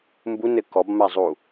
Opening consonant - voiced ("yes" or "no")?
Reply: yes